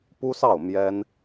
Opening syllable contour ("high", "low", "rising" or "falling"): high